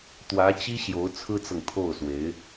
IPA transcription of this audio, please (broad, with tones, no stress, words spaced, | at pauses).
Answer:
t̪wä˧˥t͡ɕi˥ ɕjo˧˥ʊ̯t͡sʰɹ̩˥t͡sɤ˨ŋ t̪ʰo˥˩ʊ̯swe˧˥ɪ̯